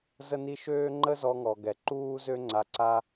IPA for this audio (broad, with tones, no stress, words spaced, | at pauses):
zə˦ni˦ ʃøː˦ ŋ͡ǃə˦zɔ˧ŋɔ˨ ɡɛ˨ǃuː˦zø˦ ŋ͡ǀa˧ ǀa˦